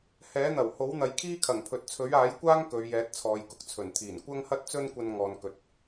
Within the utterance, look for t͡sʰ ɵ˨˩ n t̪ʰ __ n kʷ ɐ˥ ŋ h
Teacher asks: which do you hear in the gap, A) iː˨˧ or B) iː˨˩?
B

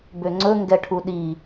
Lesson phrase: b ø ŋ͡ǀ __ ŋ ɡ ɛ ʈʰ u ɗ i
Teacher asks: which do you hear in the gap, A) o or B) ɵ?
B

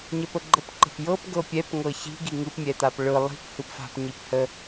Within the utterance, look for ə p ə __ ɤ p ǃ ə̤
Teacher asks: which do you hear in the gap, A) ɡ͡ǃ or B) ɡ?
A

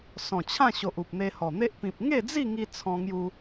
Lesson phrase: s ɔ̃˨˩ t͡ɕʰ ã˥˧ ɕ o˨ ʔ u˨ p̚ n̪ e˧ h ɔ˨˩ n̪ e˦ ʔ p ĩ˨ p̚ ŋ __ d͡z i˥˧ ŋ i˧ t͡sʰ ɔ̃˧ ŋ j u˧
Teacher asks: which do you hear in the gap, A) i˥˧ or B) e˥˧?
B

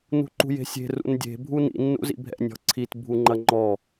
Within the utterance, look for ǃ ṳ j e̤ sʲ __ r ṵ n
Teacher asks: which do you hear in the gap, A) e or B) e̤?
B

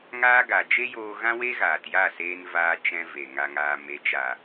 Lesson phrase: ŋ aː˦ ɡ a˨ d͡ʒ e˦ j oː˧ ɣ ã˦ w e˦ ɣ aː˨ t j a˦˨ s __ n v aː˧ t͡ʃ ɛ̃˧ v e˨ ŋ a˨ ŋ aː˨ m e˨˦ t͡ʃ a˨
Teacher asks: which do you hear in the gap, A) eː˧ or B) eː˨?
A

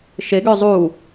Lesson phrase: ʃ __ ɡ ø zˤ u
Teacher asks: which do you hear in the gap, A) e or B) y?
A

